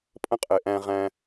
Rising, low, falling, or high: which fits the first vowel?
high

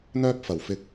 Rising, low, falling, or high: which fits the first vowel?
high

